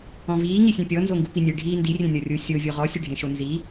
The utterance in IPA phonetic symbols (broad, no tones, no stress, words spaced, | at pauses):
ɔ̃viː ŋisʲẽpʲɔ nzoŋɡupinʲe ɖʱiːndi rʲẽnʲɔrʲu sʲo vʲoʁɔ sʲeɖʱẽʃonzi